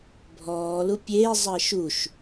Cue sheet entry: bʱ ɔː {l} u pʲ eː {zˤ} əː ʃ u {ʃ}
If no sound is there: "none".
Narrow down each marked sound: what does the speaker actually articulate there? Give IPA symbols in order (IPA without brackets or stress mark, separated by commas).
l, zˤ, ʃ